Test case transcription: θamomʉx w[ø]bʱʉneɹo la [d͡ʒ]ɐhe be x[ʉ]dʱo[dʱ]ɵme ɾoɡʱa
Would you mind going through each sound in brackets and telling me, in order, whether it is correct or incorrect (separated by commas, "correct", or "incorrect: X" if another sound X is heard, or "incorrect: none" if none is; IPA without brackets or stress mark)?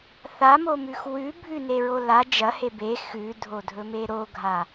incorrect: ʉ, correct, correct, correct